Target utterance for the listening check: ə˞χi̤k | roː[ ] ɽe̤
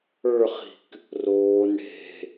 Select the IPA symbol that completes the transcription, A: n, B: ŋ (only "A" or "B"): A